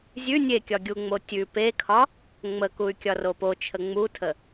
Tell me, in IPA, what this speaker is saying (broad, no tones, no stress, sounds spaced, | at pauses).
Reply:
zʲ ʉ nʲ e kʲ ɒ ɡʲ u ŋ͡m o tʲ ʉ p e kʰ ɒ | ŋ͡m ə k u y̯ kʲ ɒ r o p o t͡ʃʰ ə ŋ͡m u tʰ ə